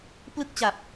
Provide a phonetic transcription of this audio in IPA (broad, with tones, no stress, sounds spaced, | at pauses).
p l ɯ˥˩ k̚ t͡ɕ a˨˩ p̚